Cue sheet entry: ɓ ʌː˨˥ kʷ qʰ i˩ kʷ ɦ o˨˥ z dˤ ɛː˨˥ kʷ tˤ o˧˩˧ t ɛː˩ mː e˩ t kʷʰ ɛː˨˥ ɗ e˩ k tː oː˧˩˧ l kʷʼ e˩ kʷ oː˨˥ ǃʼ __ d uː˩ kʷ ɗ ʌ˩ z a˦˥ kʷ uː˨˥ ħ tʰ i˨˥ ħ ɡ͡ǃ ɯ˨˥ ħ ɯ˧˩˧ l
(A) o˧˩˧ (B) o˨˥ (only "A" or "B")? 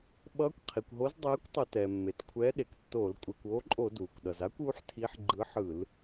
A